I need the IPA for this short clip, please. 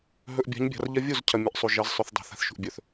ɦ ɵ˨ ʔ bʲ a̤˨˦ ɲ bʲ a̤˨ r ʎ ɐ˦ vʲ u˦˨ z cʰ ɐ˨ mʲ ɐ˨ ʔ sˤ u˨ ʒ ɐ˨˦ z sˤ ʉ˨ θ dˤ e̤˨ θ a̤˨ θ ʃ ṳ˨ ʔ bʲ ɵ˨ θ

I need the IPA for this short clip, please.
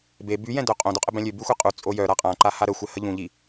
b e b y j ɛ̃ d œ qʼ õ d o qʼ ə b ɛ̃ lʲ ø b y xʷ e qʼ u t͡sʼ o j œ ɾ a qʼ ã ǃ a h a ɾ ə xʷ ɛ h ə ʎ ũ ʎ i

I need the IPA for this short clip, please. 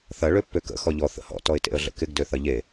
θ ɐ ɭ ø pː ø k ə̰ x ɔ ʎ ɔ θ ə̰ h ɔ̰ t ɔ ɪ̯ t ḛ ə̯ ɮ ə̰ k ɪ ɡ d ø θ ɐ ʎ e

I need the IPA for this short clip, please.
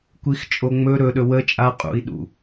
kʷ i x t͡ʃʼ o ŋ͡m ɵ ɾ ɵ ɗ ɵ w ə t͡ʃʼ a qʼ ṵ i̯ ɗ ṵ

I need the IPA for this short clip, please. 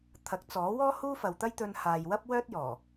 t̪ʰ ɐ˨˥ k̚ t͡s ɔː˨˥ w ɔː˥ h uː˥ f ɐ˨ w t̪ ɐ˥ j t̪ ɵ˧ n h aː˨ j w ɐ˥ p̚ w œː˥ t̚ j ɔː˨˩

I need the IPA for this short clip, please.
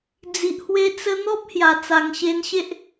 d͡z i˨ ʔ h w e˧ t͡s ə˦ n̪ ɔ˦ p̚ h j a˨˩ t͡s a˨˩ ŋ ɕ e˧ n ɕ e˦ ʔ

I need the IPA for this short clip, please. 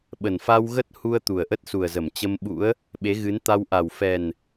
ɓ ə˨˩ n f a˧ w ɣ ə˦˥ t̚ h u˧ ə̯ t̪ u˨˩ ə̯ ʔ ə˦˥ t̚ s u˨˩ ə̯ z ə˧˩ m t͡ɕ ə˧ m ɓ ṵ˧˥ ə̯ | ɓ e˨˦ ɣ ɨ˨˦ n t̪ a˧ w ʔ a˨˩ w f ɛ˨˩ n

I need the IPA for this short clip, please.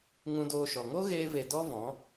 ŋ ũ˧ d oː˧ ʃ ɔ˨ ŋ o˦ ɣ eː˧ v e˨ d ɔ˦ v ɔ̃˨˦

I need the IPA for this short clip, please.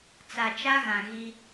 t͡s a˨ t͡ʃ a˦ ɣ ã˨ ɣ i˦

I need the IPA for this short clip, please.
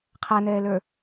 qʰ a n ɛː l ə˞

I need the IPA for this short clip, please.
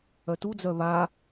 œ t u d͡z œ β a

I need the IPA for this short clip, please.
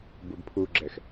b u b pʰ u ɡ͡ǁ ɛ x

